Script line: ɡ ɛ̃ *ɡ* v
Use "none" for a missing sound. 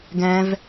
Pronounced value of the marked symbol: none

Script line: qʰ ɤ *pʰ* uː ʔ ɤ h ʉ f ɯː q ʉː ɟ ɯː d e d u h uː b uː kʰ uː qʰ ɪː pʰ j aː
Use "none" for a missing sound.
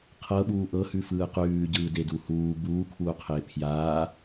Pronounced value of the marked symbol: ɓ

